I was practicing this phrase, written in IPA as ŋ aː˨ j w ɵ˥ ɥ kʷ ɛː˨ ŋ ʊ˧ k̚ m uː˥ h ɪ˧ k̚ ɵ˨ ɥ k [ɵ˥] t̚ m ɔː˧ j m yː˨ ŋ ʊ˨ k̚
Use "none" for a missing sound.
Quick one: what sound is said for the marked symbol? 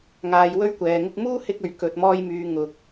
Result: ɵ˨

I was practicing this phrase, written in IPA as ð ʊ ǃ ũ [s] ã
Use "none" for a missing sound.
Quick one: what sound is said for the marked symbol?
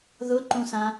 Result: s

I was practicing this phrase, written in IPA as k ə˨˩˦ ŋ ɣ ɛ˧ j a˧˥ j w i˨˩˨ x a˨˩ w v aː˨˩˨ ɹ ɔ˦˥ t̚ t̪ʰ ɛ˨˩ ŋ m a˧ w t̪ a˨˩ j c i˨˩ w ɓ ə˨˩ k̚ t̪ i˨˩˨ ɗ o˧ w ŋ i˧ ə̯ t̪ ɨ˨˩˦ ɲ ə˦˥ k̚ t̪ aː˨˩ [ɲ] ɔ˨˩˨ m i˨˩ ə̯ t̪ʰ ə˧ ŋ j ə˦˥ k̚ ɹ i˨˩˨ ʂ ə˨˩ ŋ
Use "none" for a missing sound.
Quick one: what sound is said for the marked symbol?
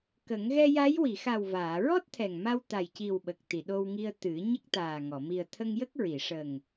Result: ŋ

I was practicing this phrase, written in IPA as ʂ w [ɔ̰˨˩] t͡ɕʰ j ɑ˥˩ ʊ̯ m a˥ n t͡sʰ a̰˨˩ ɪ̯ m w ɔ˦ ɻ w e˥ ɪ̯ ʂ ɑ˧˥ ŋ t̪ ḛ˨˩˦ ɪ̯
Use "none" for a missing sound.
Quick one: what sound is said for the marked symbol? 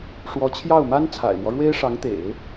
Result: ɔ˧˥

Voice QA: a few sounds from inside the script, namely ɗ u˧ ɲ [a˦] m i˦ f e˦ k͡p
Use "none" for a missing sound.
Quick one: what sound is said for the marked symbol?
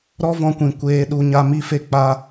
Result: a˦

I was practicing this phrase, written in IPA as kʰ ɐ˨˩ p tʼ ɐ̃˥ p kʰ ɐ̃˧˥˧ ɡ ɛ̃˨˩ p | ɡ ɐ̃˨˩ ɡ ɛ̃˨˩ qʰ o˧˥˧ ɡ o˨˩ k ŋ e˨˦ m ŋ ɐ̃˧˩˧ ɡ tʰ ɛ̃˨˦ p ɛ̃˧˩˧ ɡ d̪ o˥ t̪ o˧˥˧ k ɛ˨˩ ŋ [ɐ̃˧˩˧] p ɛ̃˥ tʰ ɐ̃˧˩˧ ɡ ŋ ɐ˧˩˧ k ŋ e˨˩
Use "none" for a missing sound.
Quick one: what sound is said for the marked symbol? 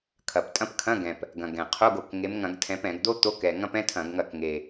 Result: ɐ̃˥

